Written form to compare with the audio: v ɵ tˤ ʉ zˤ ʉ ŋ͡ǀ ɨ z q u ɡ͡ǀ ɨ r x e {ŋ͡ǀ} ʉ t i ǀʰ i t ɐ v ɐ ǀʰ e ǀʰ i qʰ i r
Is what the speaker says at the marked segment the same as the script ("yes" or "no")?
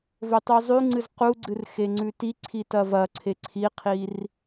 yes